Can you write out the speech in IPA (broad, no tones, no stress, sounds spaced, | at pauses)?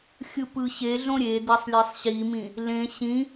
xʲ ɯ p ɯ ɕ e ɮ õ ɾʲ e d̪ e sˤ lʲ e sˤ ɕ i m ĩ | l ẽ ɕ ĩ